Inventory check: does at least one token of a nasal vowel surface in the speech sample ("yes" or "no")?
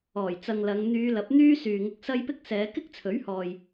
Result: no